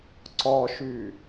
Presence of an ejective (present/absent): absent